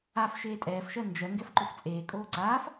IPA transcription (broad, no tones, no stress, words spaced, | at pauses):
af ʃeːtʼɛːfʃɜ nd͡ʒɜ ŋɡɛfǃoft͡sʼeːkʼoː ǀaːf